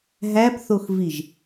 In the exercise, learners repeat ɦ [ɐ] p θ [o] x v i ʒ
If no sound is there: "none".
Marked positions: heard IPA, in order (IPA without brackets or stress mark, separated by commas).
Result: æ, o